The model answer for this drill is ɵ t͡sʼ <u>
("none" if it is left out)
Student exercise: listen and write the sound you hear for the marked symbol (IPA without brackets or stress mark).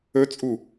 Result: u